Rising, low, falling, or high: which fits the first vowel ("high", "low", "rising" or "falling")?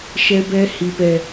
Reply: high